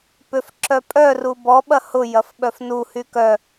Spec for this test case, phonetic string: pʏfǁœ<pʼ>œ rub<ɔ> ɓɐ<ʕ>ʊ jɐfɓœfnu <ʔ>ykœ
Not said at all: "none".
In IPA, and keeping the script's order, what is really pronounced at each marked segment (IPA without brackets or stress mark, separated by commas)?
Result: pʼ, ɔ, h, h